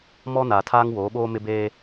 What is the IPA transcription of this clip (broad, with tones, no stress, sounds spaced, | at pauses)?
m ɔ˦ n aː˨ tʰ aː˦ ŋ w oː˨˦ ɓ oː˦ m ɪ˦ b eː˦